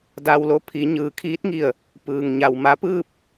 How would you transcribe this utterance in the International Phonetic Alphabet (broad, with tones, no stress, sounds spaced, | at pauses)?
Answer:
d a˧ w l o˧˥ pʰ i˩˧ ɲ ɯː˩˧ kʰ iː˧˥ t̚ ŋ i˧˩ ə̯ | p ɯː˩ ŋ ɲ a˩ w m a˧˥ p ɯː˥˨ p̚